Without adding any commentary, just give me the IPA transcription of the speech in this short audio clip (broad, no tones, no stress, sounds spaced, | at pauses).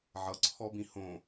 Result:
ʕ ʌ ǀʰ ɔ b ĩ h õ